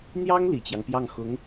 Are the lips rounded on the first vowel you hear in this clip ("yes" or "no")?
no